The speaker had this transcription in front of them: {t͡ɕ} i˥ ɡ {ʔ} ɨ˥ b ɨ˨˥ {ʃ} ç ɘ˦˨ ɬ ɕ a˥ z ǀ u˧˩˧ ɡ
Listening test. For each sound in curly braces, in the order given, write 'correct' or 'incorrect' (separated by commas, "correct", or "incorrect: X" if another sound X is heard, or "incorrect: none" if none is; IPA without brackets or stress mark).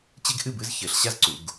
correct, correct, incorrect: z